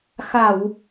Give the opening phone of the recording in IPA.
x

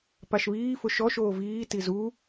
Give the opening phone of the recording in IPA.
p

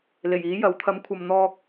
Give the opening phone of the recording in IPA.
l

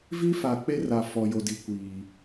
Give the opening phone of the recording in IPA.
v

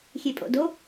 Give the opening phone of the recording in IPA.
xʲ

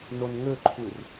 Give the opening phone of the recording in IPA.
n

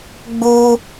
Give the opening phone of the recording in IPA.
ɡ͡b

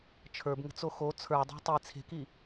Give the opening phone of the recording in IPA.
t͡ʃʰ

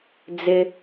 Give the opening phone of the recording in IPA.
d͡z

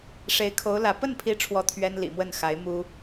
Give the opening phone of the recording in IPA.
ʂ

